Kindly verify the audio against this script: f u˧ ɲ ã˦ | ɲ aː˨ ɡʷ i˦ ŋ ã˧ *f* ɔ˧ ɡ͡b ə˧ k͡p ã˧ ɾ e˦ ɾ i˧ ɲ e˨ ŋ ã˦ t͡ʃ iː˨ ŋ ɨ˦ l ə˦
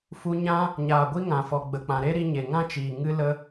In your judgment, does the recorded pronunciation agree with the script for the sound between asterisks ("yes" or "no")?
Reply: yes